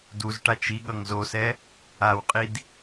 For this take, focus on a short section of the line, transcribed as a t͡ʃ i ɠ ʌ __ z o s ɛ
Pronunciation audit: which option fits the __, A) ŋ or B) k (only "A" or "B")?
A